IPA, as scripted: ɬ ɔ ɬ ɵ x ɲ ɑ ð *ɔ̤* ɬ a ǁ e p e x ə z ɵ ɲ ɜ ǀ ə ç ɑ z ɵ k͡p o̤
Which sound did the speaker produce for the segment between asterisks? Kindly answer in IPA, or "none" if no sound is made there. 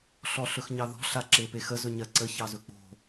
ɔ̤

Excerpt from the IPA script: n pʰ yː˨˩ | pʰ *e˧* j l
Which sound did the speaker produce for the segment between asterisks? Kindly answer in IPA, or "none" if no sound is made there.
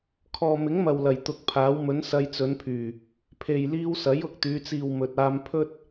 e˨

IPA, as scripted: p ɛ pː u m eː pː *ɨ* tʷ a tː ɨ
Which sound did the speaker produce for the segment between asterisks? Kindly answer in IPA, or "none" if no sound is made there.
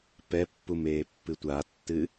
ɨ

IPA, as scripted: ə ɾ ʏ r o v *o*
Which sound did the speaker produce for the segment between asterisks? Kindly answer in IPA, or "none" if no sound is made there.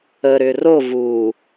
u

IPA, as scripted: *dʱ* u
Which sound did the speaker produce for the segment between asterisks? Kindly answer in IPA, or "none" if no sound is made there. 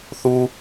θ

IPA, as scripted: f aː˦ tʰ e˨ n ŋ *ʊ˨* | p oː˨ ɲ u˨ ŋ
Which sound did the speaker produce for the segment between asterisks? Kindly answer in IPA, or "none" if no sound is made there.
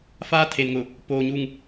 ʊ˨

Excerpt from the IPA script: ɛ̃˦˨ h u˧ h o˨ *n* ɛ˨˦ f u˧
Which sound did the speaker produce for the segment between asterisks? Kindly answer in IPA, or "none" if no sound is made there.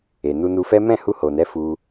n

